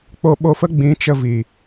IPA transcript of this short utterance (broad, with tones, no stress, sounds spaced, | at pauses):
k͡p o˧ ɓ o˧ f ə˦ ɡ͡b ĩ˨˦ t͡ʃ ə˧ v i˨